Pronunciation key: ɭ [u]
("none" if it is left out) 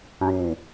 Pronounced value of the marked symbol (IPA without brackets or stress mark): u